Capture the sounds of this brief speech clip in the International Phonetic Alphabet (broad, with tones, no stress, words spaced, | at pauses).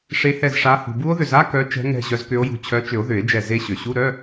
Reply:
ʂe˨˦hɛ˧˩zʂa˨˦ hṳ˩bu˦˥o̯ðʏ˧˩za˧˥˧ kœ˨˦t͡ʃɛ̤˨˦ŋɛ̤˧˩ ʑœ˨˦zkʏ˨˦o̯jṳ˧˩ t͡ɕʰœ˨˦t͡ʃʏ˨˩˦o̯ ðʏ˨˩˦e̯d͡ʒɛ˧˩ ze˦˥ɕʏ˩ ɕu˧˥˧ɾœ˧˥˧